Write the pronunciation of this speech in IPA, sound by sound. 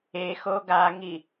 e x o ɡ a ŋ i

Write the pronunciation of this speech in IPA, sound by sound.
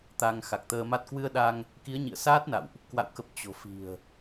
t̪ a˧ ŋ x a˨˩ k̚ t̪ əː˧ m a˦˥ t̚ k w ɨ˧ ə̯ ɗ a˧ ŋ | k i˨˦ ə̯ ɲ ḭ˧˨ ə̯ s aː˦˥ t̚ n a̰˧˨ w ʔ | k w a̰˧˨ w k ə˨˩ p̚ t͡ɕ o̤˨˩ f i̤˨˩ ə̯

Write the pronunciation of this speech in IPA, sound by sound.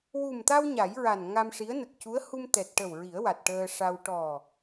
w u˨˩ m t̪ a˧ w ɲ a˨˩˦ j ɹ a˨˩ n ŋ a˧ m ʂ i˧˥ ə̯ n ə˨˩ k̚ c u˧˥ ə̯ h u˧ m t̪ ɛ˨˩ t̚ ʈ ə˨˩ w ɹ i˨˩˦ ə̯ w a˨˩ t̚ ʈ əː˧ ʂ a˧ w ʈ ɔ˨˩

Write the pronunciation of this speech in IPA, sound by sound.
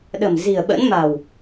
ɗ ə̤˨˩ m z i̤˨˩ ə̯ ɓ ə̰˧˥ n m a̤˨˩ w

